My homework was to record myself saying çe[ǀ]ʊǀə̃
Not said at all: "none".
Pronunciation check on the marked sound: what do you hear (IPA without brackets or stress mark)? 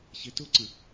t